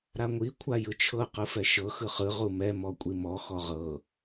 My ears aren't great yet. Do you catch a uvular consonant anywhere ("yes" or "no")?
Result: yes